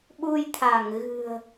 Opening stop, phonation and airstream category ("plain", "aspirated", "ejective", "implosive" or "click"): implosive